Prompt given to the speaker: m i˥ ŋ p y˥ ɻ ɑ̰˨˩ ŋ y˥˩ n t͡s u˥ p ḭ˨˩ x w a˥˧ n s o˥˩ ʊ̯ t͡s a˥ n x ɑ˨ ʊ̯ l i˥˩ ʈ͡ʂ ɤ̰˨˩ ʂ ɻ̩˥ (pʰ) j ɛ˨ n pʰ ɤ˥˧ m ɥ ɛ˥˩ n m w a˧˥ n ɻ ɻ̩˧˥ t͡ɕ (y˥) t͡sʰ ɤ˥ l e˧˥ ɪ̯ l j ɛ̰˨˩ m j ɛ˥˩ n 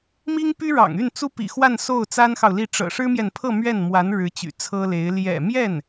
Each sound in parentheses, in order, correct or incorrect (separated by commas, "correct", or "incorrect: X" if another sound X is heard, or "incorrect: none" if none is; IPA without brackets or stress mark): incorrect: m, incorrect: y̰˨˩